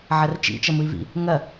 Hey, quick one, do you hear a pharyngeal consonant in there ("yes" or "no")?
yes